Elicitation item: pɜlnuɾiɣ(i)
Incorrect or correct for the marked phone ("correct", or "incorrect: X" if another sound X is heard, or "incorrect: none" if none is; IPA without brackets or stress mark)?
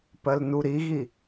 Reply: correct